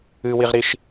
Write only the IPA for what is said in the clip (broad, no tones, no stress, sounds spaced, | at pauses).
ɨ w i ʁ ɾ i ʃ